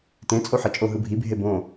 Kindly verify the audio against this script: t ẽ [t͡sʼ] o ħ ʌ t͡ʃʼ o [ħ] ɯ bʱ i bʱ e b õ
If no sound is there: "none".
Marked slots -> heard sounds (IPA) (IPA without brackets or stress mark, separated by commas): t͡sʼ, ɦ